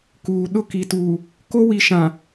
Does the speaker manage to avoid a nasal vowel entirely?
no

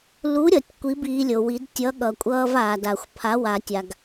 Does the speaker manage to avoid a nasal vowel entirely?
yes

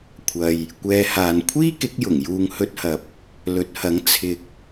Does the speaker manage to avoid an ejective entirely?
yes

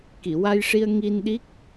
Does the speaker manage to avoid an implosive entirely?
no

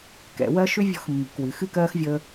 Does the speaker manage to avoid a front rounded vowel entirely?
no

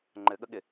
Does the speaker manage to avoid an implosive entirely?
no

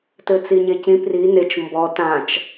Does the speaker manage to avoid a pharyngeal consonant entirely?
yes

